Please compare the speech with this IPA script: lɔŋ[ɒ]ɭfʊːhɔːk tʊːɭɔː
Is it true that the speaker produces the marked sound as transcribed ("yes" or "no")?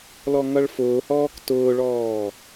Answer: no